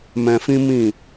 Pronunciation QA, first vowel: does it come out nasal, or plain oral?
nasal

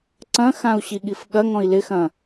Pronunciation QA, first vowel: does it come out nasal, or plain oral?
nasal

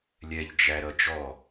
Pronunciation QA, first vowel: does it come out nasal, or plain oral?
oral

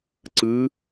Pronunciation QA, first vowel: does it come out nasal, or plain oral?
oral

